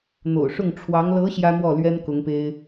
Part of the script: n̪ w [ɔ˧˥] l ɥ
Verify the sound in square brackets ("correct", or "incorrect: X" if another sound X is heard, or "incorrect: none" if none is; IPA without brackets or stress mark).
incorrect: ɔ˥˩